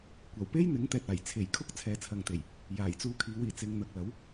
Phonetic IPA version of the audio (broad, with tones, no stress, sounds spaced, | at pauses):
kʷ ɐ˨˩ w p e˥ j n̪ ɪ˨˥ ŋ t̪ ɛː˨ t̚ aː˨˩ j t͡sʰ e˨˩ j kʰ ʊ˥ k̚ t͡sʰ ɛː˨ t͡sʰ ɐ˨ ŋ t̪ e˨˩ j | j aː˨˩ j t͡s uː˧ kʰ iː˨˧ w iː˨˩ t͡s ɪ˨˧ ŋ n̪ ɐ˨ k̚ l ɐ˨˥ w